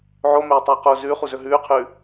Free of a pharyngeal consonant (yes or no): no